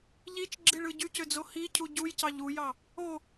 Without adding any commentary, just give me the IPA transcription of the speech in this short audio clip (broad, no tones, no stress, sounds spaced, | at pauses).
ʎ i t͡ʃ ɡ͡ǁ i ɭ ɯ ɟ y c ø d͡z o h i cʰ u ɟ u j c ɑ ʎ u j ɑ | o